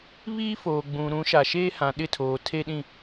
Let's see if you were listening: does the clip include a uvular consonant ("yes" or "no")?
no